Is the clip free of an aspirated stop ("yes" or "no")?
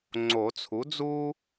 no